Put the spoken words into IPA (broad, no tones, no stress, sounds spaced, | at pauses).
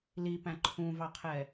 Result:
l i p æ̃ ǃʰ ũ v ɑ qʰ ɛ